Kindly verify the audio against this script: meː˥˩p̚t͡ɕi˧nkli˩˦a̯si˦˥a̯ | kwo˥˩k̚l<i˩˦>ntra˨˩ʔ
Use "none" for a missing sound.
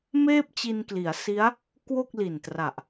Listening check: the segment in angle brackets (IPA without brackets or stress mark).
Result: i˨˩